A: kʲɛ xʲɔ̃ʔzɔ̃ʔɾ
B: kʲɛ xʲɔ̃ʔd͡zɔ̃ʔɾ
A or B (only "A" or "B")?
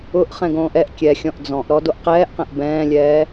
B